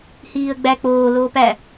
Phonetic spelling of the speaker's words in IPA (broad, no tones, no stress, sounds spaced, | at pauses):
h iː ə̯ ɡ͡b æ k͡p oː l oː p æ